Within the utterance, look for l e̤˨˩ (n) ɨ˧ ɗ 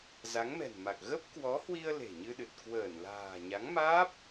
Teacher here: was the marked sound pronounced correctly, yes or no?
no